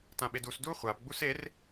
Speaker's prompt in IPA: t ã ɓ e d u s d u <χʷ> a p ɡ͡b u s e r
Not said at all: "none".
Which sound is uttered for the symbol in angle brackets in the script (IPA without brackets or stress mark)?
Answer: χʷ